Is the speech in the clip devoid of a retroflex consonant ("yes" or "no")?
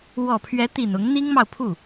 yes